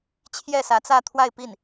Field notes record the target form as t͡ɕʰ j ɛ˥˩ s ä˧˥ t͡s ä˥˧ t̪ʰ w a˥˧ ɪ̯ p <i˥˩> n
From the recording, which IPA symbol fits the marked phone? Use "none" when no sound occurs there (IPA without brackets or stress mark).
i˥˩